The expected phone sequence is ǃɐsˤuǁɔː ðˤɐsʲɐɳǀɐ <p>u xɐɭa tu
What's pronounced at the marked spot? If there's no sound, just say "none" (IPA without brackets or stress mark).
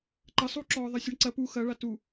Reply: p